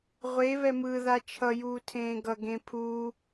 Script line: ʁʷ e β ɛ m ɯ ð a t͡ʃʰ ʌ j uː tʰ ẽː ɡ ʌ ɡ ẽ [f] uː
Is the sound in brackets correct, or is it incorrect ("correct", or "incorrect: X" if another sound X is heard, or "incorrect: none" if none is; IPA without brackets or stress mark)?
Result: incorrect: pʰ